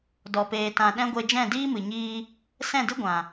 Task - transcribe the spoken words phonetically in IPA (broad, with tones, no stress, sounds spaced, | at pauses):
d ɔ˨ p eː˨ t ã˨ ɗ ɛ̃˦ ɡʷ e˧ d͡ʒ ɛ̃˦˨ d iː˦ m ɨ˨ ɲ iː˧ | s ɛ̃˦˨ d ɨ˦ ɡʷ ã˨